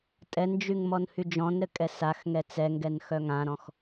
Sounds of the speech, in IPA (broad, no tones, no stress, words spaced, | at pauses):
tʼɛnd͡ʒyŋ mɔnhyd͡ʒɔ̃nɾɘ kʼɛsaxŋɛ t͡sɛŋɡɛn xœŋãɾɔ̃x